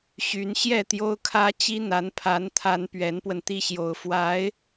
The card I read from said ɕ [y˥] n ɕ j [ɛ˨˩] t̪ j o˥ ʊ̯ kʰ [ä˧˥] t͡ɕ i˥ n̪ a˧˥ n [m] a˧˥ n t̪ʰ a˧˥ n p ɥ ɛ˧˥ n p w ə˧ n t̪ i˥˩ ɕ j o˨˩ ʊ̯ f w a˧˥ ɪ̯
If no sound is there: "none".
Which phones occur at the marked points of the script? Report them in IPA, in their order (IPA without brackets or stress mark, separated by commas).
y˧˥, ɛ˥˩, ä˥, pʰ